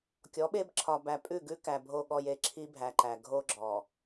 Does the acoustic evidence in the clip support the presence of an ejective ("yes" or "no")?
yes